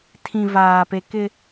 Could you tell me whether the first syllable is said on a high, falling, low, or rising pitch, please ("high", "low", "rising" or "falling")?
low